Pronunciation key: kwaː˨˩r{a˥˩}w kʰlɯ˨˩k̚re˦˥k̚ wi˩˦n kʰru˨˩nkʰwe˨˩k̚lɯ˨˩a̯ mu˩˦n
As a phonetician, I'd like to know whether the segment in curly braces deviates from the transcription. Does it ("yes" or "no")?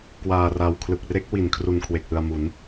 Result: yes